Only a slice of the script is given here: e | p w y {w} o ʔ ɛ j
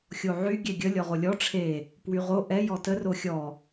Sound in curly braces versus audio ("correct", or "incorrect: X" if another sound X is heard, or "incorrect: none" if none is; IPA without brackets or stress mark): incorrect: ʁ